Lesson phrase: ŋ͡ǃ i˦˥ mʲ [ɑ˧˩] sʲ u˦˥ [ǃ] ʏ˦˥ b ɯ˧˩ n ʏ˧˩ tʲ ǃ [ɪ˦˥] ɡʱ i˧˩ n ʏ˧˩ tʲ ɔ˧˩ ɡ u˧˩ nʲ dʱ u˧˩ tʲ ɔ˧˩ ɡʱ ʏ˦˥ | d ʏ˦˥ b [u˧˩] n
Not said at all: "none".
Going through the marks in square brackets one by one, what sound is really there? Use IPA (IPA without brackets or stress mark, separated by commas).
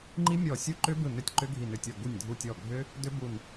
ɔ˧˩, ǃ, ʏ˦˥, u˧˩